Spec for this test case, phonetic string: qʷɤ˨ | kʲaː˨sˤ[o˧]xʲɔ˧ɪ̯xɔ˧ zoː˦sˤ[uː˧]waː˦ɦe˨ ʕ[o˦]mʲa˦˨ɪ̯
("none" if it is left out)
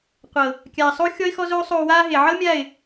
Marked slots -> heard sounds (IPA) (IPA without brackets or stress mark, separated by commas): o˧, oː˧, ɤ˦